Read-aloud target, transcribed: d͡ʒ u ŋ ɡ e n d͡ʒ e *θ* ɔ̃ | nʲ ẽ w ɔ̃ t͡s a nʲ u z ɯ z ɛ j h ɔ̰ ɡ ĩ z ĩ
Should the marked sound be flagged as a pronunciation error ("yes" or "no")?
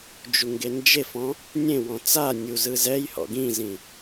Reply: yes